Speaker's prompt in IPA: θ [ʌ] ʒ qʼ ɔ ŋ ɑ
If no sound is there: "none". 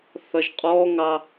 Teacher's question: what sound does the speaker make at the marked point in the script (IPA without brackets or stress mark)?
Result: ʌ